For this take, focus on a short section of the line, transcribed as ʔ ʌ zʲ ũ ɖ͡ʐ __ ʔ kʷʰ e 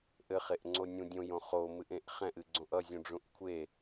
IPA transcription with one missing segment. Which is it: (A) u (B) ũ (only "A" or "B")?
B